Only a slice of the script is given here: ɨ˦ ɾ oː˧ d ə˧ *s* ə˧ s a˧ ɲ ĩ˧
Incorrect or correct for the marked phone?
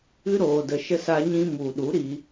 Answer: incorrect: ʃ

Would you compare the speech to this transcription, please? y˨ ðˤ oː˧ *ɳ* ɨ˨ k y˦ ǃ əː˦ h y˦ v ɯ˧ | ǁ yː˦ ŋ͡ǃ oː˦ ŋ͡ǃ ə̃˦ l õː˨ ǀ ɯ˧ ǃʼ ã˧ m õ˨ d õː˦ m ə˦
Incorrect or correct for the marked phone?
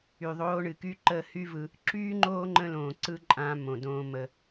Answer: correct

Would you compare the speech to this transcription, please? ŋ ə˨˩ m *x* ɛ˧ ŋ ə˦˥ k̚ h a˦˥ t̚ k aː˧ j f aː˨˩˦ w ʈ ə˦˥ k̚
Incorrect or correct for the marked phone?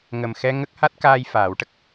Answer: correct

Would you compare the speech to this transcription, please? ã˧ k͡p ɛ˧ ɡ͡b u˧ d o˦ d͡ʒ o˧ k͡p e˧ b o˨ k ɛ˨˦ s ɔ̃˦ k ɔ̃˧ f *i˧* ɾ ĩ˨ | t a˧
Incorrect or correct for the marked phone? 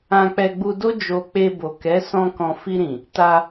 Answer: correct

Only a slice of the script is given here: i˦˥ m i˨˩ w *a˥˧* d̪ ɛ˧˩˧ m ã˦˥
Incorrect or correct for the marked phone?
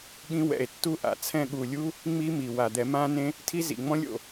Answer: incorrect: a˨˩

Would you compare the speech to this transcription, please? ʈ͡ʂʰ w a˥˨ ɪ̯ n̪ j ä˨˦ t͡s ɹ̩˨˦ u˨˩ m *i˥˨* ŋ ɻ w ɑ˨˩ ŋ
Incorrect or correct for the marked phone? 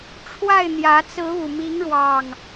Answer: incorrect: i˨˦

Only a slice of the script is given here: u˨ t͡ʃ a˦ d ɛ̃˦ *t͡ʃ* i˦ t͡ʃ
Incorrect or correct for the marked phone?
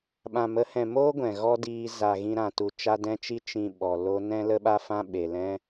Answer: correct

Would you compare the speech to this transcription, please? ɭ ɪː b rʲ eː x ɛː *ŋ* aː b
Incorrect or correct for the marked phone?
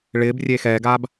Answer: incorrect: ɡ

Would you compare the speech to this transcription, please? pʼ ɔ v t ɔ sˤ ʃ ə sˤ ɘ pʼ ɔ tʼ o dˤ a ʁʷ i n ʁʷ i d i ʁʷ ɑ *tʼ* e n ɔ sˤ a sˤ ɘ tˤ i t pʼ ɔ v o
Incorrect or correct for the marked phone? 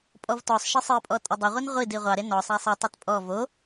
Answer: incorrect: ɾ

